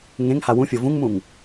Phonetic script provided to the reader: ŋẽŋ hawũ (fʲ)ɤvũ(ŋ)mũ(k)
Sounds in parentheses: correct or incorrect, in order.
correct, correct, incorrect: ŋ

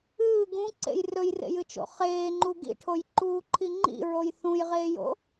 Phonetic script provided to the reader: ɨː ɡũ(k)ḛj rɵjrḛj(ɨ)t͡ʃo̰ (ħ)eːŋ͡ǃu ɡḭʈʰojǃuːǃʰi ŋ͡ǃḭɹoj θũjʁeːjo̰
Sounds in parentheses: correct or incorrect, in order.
incorrect: ǀ, correct, incorrect: χ

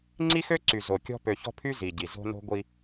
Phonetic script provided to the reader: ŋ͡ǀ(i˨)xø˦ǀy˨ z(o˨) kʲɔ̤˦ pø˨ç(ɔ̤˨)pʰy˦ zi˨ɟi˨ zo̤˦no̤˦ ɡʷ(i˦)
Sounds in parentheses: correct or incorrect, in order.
incorrect: i˦, correct, incorrect: ɔ̤˦, correct

